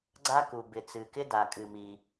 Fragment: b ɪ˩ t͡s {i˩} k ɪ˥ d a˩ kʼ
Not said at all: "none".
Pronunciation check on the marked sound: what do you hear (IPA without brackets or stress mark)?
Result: ɨ˩